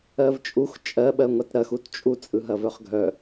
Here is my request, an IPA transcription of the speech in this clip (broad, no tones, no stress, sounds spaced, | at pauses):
ɜ v t͡ʃʼ u x t͡ʃʼ ɜ ɓ ɜ ŋʷ a t ɾ ɐ x u t t͡ʃʼ u t͡sʼ ɯ ɦ ɐ v œ χ ɡʱ œ